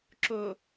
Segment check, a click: present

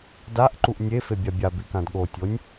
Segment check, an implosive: present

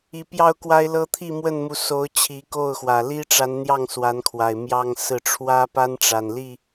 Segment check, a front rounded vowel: absent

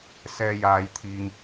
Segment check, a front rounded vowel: absent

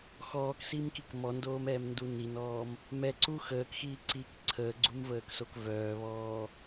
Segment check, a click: present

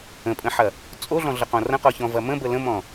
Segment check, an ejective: present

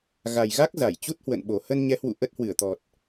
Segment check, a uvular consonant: absent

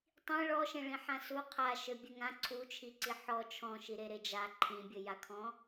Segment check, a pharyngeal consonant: present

